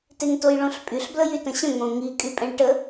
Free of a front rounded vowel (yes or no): no